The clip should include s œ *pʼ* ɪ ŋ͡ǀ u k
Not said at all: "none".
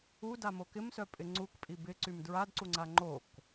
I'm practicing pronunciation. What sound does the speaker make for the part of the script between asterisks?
pʼ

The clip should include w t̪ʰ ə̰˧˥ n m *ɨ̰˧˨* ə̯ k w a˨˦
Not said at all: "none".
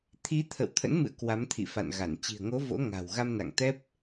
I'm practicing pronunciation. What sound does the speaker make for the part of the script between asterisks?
ɨ̰˧˨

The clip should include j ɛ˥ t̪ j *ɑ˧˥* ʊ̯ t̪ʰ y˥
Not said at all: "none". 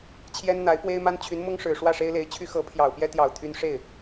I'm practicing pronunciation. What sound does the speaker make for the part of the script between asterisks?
ɑ˨˩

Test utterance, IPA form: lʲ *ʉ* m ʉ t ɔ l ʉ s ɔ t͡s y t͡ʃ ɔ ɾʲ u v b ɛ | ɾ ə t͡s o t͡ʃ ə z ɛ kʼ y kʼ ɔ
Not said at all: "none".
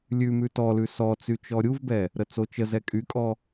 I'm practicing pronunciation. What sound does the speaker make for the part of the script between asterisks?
ʉ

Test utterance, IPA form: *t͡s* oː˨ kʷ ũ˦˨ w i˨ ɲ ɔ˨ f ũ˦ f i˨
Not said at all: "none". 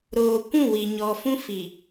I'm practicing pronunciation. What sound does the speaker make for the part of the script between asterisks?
ɾ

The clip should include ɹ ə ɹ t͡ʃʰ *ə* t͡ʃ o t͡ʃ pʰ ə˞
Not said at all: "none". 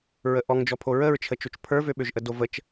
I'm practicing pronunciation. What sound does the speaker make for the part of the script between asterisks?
ə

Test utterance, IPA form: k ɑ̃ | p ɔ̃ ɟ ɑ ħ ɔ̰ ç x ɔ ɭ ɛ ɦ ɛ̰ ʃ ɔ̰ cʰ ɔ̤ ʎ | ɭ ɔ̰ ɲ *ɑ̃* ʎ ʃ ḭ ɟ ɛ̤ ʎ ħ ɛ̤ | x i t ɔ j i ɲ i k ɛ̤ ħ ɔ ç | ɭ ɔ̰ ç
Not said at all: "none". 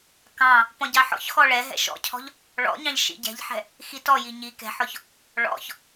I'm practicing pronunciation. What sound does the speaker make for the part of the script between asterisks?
ɑ̃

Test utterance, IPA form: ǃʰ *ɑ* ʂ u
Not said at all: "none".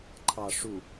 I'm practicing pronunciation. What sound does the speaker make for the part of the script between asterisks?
ɑ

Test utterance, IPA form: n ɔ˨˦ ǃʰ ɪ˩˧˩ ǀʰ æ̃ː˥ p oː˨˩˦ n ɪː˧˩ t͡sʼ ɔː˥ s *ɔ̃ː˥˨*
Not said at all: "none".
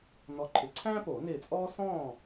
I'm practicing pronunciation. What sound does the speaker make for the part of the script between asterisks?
ɔ̃ː˥˨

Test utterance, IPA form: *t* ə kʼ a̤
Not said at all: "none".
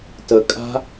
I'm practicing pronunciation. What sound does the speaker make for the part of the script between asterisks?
t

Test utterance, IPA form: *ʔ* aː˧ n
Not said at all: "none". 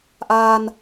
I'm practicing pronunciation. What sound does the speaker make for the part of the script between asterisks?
ʔ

